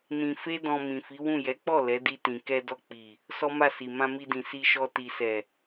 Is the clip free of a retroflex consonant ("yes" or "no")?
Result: yes